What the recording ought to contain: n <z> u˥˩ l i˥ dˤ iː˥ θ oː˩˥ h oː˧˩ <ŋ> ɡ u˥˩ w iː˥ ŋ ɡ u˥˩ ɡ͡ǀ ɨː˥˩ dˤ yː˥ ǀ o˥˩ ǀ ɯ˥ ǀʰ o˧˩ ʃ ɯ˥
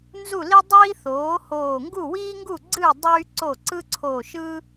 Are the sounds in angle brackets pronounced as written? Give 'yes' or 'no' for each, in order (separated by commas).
yes, yes